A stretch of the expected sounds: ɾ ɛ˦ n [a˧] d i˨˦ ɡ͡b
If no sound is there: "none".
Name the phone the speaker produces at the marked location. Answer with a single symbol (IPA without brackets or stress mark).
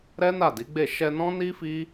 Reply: a˦˨